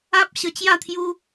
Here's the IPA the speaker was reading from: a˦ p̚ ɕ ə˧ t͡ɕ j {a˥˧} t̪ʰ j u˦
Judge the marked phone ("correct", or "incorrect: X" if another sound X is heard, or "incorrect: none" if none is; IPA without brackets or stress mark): correct